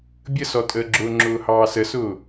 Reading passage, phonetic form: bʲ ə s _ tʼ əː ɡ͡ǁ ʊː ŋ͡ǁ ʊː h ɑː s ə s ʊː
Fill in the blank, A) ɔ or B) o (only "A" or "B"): A